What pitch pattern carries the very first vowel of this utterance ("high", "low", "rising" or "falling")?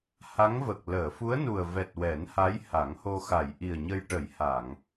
rising